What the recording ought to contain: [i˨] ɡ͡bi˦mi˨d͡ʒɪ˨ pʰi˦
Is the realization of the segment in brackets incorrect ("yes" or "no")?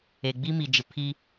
yes